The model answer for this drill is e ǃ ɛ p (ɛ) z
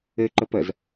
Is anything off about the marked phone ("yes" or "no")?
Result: no